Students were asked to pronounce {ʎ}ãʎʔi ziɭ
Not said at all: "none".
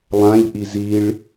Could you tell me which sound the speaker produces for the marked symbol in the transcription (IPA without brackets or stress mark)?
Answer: lˠ